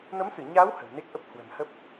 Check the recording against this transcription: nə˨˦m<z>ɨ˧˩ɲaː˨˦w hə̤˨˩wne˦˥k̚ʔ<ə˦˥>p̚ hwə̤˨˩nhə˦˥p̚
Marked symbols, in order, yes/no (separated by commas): no, yes